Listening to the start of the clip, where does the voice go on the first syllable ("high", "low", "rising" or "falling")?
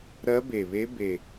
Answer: rising